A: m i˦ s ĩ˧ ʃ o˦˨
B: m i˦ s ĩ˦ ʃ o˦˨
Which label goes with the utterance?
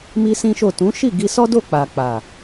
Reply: B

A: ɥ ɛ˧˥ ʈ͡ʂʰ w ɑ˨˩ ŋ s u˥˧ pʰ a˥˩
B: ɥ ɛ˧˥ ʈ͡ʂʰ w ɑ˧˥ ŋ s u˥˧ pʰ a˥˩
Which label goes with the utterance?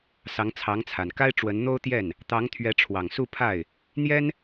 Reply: A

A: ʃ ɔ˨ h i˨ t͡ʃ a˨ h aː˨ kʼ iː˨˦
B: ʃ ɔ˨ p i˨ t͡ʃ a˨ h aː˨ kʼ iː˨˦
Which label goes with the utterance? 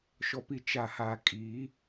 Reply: B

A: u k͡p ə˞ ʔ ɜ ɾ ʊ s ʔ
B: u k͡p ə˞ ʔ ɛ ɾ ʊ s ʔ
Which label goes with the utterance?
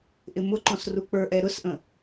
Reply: B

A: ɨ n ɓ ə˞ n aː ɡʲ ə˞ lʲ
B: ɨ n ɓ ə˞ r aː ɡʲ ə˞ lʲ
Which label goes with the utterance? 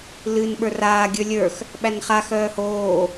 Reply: B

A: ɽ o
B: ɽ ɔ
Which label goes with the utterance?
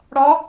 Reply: B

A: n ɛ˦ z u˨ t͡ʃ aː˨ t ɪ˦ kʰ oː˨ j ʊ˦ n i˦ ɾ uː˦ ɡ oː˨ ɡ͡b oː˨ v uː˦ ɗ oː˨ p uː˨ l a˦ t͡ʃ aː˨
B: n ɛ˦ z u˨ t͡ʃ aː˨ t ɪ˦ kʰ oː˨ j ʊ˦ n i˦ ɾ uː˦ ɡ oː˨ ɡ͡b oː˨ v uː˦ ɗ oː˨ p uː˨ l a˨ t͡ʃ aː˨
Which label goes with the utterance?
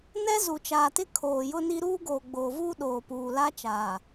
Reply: A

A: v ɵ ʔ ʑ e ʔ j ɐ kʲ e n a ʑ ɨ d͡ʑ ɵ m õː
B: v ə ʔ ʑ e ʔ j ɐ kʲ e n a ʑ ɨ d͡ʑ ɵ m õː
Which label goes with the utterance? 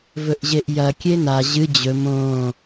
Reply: A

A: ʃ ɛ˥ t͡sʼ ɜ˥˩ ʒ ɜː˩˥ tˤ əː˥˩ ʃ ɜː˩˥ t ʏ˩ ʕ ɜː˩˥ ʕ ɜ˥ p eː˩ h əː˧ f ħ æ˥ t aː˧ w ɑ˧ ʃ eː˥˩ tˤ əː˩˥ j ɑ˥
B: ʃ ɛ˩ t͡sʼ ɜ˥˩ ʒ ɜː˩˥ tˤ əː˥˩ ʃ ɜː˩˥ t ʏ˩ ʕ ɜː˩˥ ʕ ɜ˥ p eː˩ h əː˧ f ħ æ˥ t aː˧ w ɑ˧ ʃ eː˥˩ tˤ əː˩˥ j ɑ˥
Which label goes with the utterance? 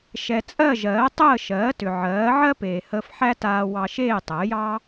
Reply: B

